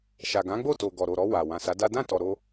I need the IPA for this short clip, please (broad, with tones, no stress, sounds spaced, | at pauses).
ʃ a˨ ɡ ã˨˦ ɡ͡b o˦˨ t o˨ ɡ ɔ˨ ɾ o˨ ɾ ɔ˧ w a˨ w ã˨ s a˨˦ d a˦ d ã˦˨ t ɔ˨ ɾ o˧